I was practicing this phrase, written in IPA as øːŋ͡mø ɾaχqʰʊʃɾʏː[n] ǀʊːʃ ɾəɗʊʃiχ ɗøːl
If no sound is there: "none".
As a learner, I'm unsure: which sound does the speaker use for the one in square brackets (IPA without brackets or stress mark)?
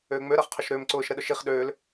m